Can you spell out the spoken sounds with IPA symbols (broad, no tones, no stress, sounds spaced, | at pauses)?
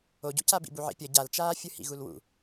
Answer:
o ɟ ṵ c a b ḭ b u ʕ ḭ pʲ ʌ ɟ a l t͡ʃ aː fʲ ɯ h ḭ ɣ u l w ṵ